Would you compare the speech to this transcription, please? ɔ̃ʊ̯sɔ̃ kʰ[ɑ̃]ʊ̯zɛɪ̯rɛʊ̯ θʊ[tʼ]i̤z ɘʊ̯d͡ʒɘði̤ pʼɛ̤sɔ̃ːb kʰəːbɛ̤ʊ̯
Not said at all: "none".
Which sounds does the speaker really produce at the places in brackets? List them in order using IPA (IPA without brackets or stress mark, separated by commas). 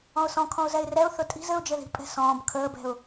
ɔ̃, tʼ